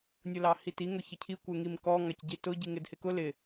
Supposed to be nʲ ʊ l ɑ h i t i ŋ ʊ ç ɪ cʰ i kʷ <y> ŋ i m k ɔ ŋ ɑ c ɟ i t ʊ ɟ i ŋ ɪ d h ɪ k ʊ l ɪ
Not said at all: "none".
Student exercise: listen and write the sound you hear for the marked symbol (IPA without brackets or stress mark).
ɪ